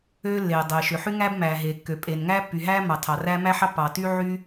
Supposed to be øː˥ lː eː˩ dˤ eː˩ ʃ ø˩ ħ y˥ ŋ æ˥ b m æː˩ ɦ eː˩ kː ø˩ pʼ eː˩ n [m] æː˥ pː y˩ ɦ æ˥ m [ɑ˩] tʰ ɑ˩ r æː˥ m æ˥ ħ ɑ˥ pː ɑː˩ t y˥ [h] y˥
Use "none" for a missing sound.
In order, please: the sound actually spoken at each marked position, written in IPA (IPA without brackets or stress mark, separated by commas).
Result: ŋ, ɑ˩, ʕ